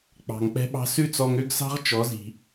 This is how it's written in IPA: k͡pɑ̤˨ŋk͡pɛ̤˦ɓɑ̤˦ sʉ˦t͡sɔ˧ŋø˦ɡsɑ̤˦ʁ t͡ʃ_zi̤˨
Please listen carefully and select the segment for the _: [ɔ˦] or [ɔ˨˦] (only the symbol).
ɔ˨˦